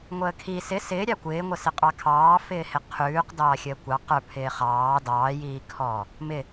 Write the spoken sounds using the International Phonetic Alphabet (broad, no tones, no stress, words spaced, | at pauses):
ŋʷəːkʰi sɪ sɪːɾʲɑ kʷɪːŋʷəsɪ qʼɑkʰɑːfɪː hɪqʰʉːqdɑː xʲəːkʷɑ qə˞pʰɪː χɑː dɑːjiːkʰɔː | mɪ